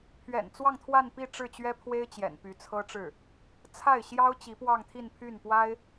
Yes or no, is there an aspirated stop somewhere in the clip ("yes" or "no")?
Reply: yes